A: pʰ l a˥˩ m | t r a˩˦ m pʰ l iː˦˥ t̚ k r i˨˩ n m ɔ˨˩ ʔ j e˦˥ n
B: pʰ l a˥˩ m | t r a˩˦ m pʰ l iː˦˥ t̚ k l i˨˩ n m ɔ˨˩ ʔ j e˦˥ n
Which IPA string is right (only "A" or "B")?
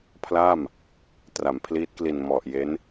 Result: B